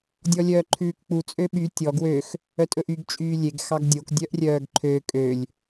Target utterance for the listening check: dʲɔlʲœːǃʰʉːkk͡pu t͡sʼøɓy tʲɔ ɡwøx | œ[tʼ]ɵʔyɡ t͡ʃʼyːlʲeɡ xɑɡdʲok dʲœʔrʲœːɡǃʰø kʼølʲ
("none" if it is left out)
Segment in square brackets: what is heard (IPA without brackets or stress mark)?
tʼ